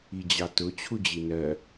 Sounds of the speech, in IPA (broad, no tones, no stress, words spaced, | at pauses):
id͡ʑɑtʊ t͡ɕʰud͡ʑinɜ